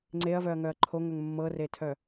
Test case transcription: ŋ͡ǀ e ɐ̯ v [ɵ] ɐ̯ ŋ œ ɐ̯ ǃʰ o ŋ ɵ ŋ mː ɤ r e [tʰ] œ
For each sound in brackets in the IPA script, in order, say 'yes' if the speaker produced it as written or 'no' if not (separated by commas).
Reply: no, yes